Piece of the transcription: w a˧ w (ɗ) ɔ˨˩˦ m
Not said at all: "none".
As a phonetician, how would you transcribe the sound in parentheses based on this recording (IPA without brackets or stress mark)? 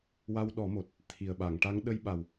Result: ɗ